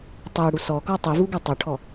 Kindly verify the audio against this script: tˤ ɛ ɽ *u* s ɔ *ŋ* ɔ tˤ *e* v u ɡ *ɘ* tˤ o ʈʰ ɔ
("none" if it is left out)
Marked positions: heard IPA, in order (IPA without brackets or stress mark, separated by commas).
u, k, i, ø